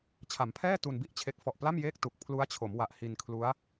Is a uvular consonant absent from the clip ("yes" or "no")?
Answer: yes